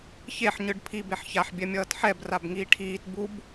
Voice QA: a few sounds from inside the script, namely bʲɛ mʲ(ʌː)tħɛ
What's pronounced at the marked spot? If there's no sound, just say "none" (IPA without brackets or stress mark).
ʌː